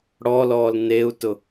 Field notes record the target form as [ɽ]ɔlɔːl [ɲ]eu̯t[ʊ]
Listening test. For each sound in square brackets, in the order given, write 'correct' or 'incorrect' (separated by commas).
correct, incorrect, correct